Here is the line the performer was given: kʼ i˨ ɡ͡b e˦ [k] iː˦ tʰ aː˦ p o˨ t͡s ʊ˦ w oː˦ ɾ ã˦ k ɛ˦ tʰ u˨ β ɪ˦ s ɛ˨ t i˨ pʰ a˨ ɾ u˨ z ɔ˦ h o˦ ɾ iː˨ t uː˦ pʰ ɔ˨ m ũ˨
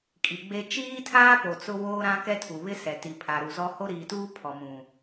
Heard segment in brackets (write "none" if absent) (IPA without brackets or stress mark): t͡ʃ